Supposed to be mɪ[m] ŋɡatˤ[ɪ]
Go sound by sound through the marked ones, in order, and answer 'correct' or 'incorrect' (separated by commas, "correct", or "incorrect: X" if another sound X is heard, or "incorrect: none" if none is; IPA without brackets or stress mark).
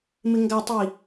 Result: incorrect: none, incorrect: i